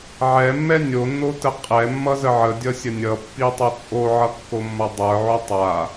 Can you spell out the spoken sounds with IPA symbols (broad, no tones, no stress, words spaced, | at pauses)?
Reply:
ʕɛmːɛ nʲonːotə qʼɛmːʌzə ʕədʲʌsʲə nʲʌpːitˤo t͡sʼoʕʌkːomːʌ dˤə˞ʕo tˤa